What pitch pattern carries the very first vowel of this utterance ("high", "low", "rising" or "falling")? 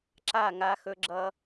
falling